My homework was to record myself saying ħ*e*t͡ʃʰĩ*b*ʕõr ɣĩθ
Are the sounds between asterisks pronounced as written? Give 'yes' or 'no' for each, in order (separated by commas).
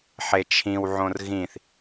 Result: yes, no